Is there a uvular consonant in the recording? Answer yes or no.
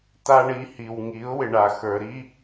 no